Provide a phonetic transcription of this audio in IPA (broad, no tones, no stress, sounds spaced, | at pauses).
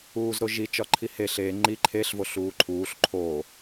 uː z ɾ o ʒ i t͡ʃ ɒ ǃʰ i h e ɬ e ŋ͡ǃ i ǃʰ e ɬ v o ɬ uː ǃʰ uː ɬ ǃʰ o